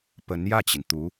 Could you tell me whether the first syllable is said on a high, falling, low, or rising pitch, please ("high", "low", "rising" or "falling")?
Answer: rising